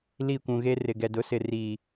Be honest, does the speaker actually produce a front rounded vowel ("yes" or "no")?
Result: no